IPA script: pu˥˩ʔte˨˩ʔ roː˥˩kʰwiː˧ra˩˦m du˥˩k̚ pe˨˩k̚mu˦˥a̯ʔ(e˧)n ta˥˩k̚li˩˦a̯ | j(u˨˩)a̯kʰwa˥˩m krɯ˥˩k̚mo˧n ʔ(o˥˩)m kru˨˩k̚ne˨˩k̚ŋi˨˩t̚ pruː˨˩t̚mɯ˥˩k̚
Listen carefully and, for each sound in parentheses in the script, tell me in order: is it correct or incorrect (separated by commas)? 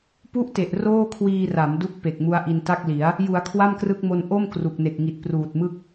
incorrect, incorrect, correct